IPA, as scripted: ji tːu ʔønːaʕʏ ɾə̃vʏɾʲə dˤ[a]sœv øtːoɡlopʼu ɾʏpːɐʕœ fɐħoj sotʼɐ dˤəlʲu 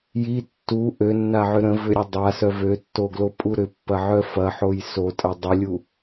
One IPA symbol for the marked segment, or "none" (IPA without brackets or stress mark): a